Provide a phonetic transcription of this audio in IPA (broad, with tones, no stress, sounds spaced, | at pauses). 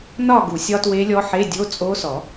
n ɒ˥˧ ɡ u˨˩˦ sʲ ɒ˦˥ t w e˦˥ lʲ ɔ˦˥ ħ e˧˥˧ dʲ o˧˥˧ t͡sʼ o˦˥ s ɔ˨˩˦